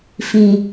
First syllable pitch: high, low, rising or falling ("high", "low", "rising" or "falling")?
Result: low